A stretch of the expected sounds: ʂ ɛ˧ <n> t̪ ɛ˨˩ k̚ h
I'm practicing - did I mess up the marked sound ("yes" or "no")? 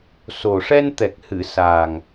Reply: no